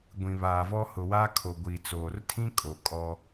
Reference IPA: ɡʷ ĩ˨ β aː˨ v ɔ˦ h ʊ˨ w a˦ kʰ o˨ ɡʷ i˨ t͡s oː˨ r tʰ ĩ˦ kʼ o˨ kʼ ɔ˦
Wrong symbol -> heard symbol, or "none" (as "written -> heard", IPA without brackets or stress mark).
none